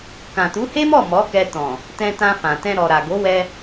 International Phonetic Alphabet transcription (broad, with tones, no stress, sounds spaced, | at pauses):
k ã˨ t u˨˦ h e˦ m ɔ˦˨ m ɔ˨˦ k ɛ˧ t ɔ̃˨ | t ɛ̃˧ t ã˧ f ã˨ t ɛ̃˧ ɾ ɔ˨ ɾ a˨ ɡ o˨˦ w ɛ˧